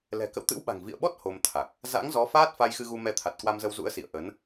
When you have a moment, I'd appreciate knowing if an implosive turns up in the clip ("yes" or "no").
yes